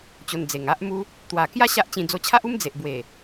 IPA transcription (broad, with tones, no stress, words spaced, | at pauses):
t͡ɕo˨˩n d͡ze˨˩ŋa˦ʔmu˦ | t̪wa˨˩kja˦ ɕa˦ʔt͡ɕĩ˧ d͡zo˧t͡ɕʰa˦ʔu˦m d͡ze˨ʔbwe˨˩